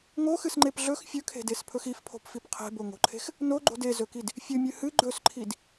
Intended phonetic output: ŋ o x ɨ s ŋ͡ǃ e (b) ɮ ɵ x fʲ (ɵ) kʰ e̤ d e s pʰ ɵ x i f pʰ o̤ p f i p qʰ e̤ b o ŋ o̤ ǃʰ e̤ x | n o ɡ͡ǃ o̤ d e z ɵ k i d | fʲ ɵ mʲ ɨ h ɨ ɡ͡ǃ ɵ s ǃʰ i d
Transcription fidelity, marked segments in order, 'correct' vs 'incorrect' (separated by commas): incorrect, correct